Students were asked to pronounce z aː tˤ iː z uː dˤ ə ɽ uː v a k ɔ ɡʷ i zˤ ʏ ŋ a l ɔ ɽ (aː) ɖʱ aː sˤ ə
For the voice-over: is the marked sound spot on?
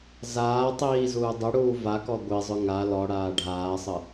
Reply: yes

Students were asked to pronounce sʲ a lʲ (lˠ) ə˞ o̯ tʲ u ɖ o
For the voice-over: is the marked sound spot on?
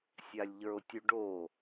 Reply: no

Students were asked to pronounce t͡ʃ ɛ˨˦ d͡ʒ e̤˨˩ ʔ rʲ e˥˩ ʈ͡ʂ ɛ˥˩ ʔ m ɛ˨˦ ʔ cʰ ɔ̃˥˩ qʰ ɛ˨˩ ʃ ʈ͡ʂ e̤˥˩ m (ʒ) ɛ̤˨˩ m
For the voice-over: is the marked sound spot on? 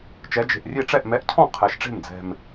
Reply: no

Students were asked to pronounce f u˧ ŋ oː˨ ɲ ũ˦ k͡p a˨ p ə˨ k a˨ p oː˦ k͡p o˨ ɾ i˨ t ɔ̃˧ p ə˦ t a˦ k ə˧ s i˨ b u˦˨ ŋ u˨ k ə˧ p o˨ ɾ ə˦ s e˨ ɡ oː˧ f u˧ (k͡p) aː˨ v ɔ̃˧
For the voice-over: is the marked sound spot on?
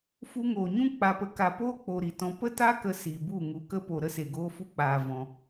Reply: yes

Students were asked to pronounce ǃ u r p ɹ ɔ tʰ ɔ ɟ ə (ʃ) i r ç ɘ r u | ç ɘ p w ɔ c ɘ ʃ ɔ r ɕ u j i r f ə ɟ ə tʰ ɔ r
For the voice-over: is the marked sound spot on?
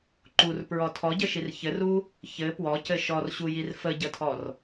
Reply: yes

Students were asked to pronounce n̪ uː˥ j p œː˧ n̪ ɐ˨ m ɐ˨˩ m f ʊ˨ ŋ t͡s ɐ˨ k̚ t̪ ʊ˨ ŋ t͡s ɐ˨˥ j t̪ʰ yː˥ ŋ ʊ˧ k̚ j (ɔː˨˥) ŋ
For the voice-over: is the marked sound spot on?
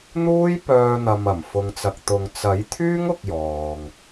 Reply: no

